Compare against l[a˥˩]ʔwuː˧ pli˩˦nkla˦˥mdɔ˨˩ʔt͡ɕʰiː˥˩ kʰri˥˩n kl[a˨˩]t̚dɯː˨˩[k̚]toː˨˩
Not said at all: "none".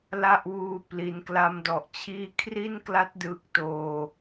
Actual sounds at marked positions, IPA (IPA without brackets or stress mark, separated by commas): a˥˩, a˦˥, k̚